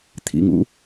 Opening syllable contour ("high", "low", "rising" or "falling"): low